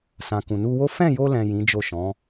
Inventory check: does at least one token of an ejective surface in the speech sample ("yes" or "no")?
no